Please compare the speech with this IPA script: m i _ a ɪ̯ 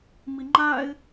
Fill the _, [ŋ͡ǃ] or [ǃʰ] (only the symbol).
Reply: ŋ͡ǃ